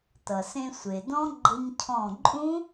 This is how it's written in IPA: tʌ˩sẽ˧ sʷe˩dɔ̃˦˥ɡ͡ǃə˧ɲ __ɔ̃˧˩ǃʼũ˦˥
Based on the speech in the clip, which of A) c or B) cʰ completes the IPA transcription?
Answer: B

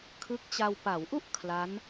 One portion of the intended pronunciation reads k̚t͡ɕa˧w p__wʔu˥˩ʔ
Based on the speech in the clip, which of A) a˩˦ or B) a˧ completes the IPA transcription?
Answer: A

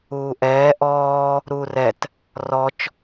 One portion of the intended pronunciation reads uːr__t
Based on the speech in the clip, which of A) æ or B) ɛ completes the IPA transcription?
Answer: B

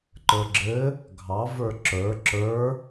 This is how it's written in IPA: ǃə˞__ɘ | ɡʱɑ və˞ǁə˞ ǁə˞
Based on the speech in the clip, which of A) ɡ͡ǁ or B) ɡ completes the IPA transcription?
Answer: A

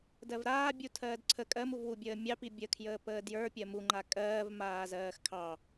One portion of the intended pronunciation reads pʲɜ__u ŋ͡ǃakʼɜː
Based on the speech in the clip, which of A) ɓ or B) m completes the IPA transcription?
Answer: B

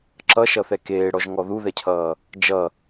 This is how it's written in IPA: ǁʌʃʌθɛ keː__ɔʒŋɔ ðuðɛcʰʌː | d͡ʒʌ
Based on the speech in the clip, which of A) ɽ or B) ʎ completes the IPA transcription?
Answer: A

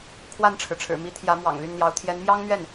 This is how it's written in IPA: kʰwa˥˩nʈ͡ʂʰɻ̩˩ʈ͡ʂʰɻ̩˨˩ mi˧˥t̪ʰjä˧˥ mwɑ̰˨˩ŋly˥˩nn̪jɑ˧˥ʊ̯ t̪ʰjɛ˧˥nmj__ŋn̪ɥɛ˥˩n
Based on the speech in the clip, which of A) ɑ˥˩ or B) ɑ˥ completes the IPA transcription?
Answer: B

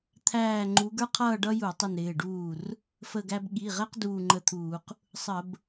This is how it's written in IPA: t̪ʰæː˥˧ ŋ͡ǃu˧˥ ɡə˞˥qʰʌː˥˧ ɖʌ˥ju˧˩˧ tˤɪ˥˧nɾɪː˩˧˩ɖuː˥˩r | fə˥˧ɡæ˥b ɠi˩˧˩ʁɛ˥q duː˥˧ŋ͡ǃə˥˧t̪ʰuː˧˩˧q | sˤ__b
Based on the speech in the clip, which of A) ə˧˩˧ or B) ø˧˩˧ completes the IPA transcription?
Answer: A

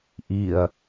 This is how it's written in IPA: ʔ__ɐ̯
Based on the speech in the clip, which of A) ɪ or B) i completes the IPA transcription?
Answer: B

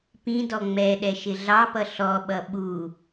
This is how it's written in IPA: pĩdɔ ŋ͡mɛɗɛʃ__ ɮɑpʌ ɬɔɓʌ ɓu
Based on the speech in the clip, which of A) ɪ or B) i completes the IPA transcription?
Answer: A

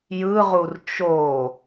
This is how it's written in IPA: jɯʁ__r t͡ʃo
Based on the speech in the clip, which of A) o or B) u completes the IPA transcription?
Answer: B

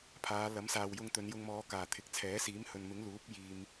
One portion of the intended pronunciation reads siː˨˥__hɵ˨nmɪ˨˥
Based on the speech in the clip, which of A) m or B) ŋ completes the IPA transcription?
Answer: A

